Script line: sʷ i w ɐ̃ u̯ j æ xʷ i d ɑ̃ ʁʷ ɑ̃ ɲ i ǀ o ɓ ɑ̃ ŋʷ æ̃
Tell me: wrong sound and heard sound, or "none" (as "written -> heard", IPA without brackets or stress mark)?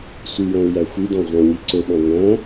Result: ɐ̃ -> æ̃